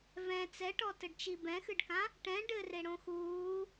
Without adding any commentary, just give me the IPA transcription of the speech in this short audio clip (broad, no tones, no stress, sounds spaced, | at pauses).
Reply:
v ɛ̃ t͡s ɛ ʈ ɔ t ɘ ɖ t͡ʃ i b ɛ̃ x ɨ ɖ k ã | ʈ ɛ̃ ɖ ɘ r e ɽ õ x uː